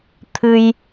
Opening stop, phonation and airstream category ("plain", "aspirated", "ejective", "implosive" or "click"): aspirated